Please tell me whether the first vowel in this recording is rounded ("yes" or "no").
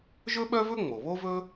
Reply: yes